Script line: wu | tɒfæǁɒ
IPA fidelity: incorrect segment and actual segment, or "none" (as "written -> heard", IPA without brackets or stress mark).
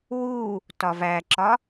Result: f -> v